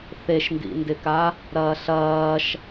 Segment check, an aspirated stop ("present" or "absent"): absent